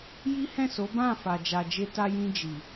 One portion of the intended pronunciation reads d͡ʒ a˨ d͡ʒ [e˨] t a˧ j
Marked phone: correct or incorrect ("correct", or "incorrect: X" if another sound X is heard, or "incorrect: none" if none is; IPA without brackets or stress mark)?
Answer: incorrect: e˧